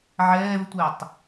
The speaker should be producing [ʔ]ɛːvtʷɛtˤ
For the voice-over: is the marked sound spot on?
no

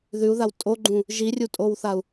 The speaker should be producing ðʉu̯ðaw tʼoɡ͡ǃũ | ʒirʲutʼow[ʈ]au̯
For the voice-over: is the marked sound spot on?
no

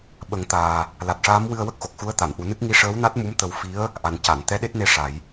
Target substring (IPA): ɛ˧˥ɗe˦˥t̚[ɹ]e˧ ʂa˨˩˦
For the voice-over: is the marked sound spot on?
no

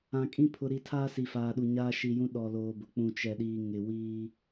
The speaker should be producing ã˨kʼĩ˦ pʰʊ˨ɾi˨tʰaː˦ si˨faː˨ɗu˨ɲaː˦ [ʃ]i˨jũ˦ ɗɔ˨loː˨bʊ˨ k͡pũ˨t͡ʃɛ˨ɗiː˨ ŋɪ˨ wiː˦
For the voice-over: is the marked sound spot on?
yes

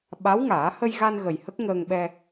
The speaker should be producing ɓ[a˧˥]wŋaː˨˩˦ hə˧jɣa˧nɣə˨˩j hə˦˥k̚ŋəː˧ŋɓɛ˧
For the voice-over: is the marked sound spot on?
yes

